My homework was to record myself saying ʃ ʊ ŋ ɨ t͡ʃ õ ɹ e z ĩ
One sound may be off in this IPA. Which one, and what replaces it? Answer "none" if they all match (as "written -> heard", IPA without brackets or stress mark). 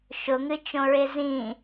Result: none